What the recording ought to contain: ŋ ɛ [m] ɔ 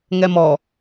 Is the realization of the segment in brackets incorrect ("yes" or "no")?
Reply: no